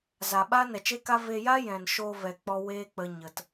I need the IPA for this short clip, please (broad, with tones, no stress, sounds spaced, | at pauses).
z a˨ ɓ aː˦ n ɛ˨ t͡ʃ e˦ k a˦ v e˧ j a˦ j ɛ̃˨ n ʃ oː˧ v ɛ˨ k͡p ɔ˧ w e˦ k͡p ə˧ ɲ ə˨ t